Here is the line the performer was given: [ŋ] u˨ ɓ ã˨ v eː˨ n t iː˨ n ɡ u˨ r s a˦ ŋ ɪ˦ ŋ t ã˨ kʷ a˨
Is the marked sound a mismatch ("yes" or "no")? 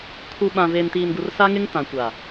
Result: yes